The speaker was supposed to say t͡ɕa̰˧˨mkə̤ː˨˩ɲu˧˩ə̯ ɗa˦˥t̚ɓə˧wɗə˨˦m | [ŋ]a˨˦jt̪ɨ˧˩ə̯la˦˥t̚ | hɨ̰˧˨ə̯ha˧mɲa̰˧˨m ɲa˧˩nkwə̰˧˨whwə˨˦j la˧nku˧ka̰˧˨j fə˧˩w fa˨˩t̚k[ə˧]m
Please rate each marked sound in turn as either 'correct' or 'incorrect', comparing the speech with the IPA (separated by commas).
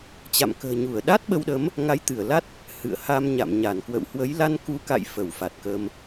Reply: correct, correct